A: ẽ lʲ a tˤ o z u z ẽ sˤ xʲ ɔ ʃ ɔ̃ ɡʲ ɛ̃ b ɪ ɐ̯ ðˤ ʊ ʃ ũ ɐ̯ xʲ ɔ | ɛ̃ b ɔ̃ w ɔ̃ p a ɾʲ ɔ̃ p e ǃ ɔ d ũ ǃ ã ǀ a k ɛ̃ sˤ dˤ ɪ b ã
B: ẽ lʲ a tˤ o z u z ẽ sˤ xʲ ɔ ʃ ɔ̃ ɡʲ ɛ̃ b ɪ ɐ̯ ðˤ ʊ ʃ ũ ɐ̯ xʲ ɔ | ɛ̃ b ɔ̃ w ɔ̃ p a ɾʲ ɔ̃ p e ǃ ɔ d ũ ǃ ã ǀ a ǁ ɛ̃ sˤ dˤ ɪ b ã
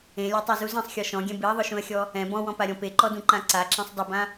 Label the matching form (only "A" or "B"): B